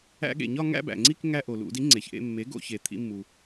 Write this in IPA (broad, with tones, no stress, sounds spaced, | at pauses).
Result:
æ̰˧ ɠ ḛ˩ ɲ ɒ˥˧ ŋ æ̰˥˧ b æ̰˩ ŋ͡ǀ i˥˧ k ŋ æ˧ ʔ o˩ l ṵ˧˩˧ d i˩˥ ŋ͡ǀ e˩ ç ʔ ḛ˥˧ mː e˩˥ ɡ o̰˧˩˧ ç e˩ t̪ʰ ḭ˧ mː u˩